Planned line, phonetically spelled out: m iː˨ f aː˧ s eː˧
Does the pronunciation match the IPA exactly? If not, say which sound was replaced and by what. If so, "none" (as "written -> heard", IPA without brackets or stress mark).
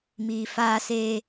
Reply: none